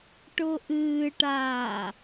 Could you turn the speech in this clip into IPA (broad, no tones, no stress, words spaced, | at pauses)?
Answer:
ʈʊʔɨːʈaː